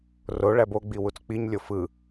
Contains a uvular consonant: no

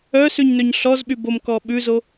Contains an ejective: no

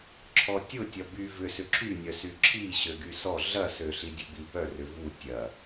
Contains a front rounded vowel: yes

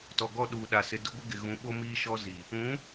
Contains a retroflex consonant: no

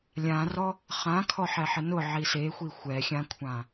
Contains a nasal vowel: yes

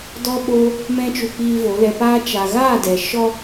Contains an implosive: yes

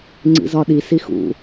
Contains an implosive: yes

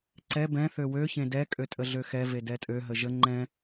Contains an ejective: yes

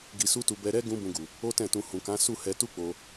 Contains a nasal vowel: yes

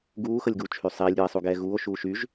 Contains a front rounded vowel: yes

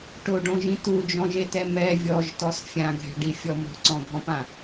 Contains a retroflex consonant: yes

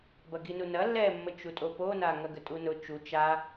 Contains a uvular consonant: no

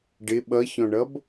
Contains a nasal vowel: yes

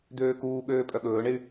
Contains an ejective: yes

